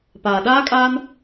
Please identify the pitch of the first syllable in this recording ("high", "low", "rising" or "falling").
low